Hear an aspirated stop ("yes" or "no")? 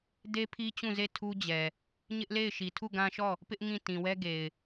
yes